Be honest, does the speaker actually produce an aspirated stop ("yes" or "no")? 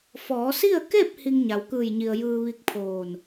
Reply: yes